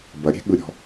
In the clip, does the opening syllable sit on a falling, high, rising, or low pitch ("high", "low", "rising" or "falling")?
low